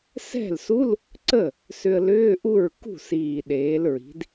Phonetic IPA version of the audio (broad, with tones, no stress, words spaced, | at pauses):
sɛ̤˥˩lsu˧˥˧l | ǀə˥˩ | sʏ˧ə̯lʏː˧˥˧ʔu˥˩ɹ kṳ˥˩siː˨˩ɗeː˩˧lɹi̤˩˧d